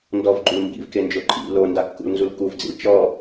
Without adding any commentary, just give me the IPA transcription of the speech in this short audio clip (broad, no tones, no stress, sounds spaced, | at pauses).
n d ɔ v ɡ͡ǃ u l m b ḭ v k e n d͡ʒ o ǃʼ ḭ l o n d a kː ṵ l n z u l k u v d͡z ḭ l t͡ʃ ɔ